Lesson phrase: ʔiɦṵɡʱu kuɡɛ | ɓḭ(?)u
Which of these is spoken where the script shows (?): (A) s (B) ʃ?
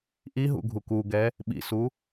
A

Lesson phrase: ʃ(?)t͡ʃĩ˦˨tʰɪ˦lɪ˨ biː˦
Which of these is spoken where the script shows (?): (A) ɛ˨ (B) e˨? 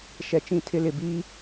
A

